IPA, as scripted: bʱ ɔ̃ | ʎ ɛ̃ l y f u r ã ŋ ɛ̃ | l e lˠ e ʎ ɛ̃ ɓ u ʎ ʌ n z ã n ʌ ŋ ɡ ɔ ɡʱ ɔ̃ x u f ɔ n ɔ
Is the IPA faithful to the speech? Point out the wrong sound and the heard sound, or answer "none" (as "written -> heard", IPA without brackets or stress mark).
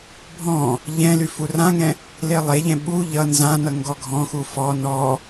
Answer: none